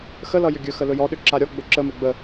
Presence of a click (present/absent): present